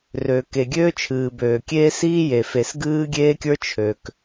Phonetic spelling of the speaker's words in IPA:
r ø˨ k e˨ ɡʲ øː˦ t͡ʃʰ ɨː˨ b øː˨ kʲ eː˦ s iː˦ j e˨ f e˨ s ɡ ɨː˦ ɡʲ eː˦ kʲ ə˞˦ t͡ʃʰ ø˨ k

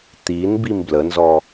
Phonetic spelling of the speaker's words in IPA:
t̪ i n b i m b l ə n z ɔ

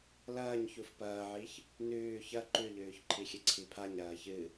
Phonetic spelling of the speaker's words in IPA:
l ɐː ɲ ç u f p ɐː ʕ i ç | n ʉː ç ɐ ǃ ʉ ʎ ʉː ç ǃʰ i xʲ ɨ ǀʰ i pʰ a ɲ ɾ ɐː ç ɨ

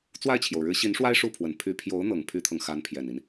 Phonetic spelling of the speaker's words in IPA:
t͡s w a˥˩ ɪ̯ t͡ɕʰ j o˩ ʊ̯ ɻ ɻ̩˧˥ ɕ i˧˥ n ʂ w a˥ ɪ̯ ʂ u˥˩ pʰ w ə˨˩ n pʰ y˧˥ pʰ j o˧˥ ʊ̯ n̪ ɤ˨˩ ŋ pʰ y˥ t̪ʰ ɤ˨ ŋ x a˧˥ n pʰ j ɛ˨˩ n i˦ n

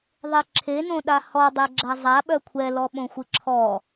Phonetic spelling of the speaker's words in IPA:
ðˤ e ǁʰ e n õ ɗ a h ɔ dˤ ɛ ɡ͡ǁ a zˤ a ɓ œ kʷʰ ɛ l ɔ ɓ õ xʷ ɨ ǁʰ ɔ

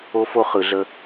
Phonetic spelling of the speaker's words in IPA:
o˦ f o˦ χ ɯ˨ ɮ ə˦

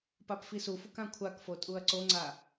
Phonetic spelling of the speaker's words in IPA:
p a p f i s u f u k ã kʷʰ a k f o tʼ u ɐ̯ ǀ o ŋ͡ǀ a

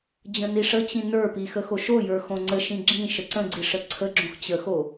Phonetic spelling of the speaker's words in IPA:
d͡ʑ ə̃ n i ʂ ə t͡ɕ ĩ n ə˞ p i x ə x o ʃ o j ə˞ x õ ŋ͡ǀ ə ʃ ĩ ɡ͡ǁ ĩ ʃ ə ǀ ə̃ ɡ͡ǀ i ʂ ə ǀʰ ə ɡ͡ǁ õ x t͡ɕ ə x o

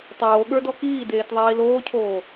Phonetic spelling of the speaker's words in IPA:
tˤ oː ɠ ə˞ d ɔ k iː d eː t ðˤ iː l oː cʰ oː

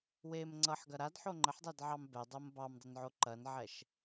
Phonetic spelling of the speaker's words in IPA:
w e m ŋ͡ǀ ʌ ħ ɡ ɐ ɾ a d ħ o ŋ͡ǃ ə ħ dˤ ɛ d ʕ ɑ m b ɛ dˤ o m b ɑ m dˤ ə n ʕ o ǃ ɐ n ʕ ɛ ʃ

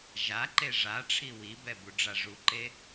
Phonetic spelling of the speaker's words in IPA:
ʒ a ǃ e ʐ a ʈ͡ʂʰ i w i b ɛ b u ɖ͡ʐ a ʐ u ǃ e

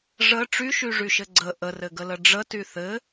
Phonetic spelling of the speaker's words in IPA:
ʐ ə ʈ͡ʂ y ʃ y ʐ y ʃ ɘ ɡ͡ǀ ə ʔ ə r ɘ ɡ ə l ə ɖ͡ʐ ə t y θ ɘ

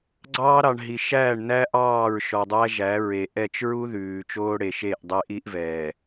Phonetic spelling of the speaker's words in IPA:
ɡ͡ǀ ɑː˦ ɾ ɑ˨ ɳ ɦ i˨ ʃ æː˦˨ ɳ n æ˦ ʔ ɑː˦˨ ɹ ʃ ɔ˨ dˤ æ˦ ʒ æ˨˦ ɹ e˨ ʔ ɛ˦˨ t͡ʃ ɹ u˦ ð ʉː˨ t͡ʃ oː˦ ɽ e˨ ʃ e˦˨ ʔ dˤ e˦ ʔ i˦ ʔ v ɛː˨

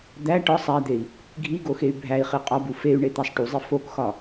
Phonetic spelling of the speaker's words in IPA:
d̪ æ ʈ ɒ sˤ æ d̪ e i̯ | ɡʱ i ɡ o x e y̯ bʱ æ i̯ χ i qʼ ɒ b u f e y̯ ɳ e t̪ æ sˤ ʈ u zˤ i f o k x ɒ

